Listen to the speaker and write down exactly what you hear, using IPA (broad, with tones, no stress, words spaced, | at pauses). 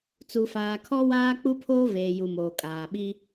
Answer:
t͡su˨faː˨ kʰɔ˦waː˦ k͡pu˦pʰoː˦veː˨ju˨ moː˨kʼaː˨ɓi˦